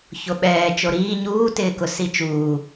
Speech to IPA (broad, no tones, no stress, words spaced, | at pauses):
çoɓɛː t͡ʃoɾiː ɲuːtɪːkʊ sit͡ʃuː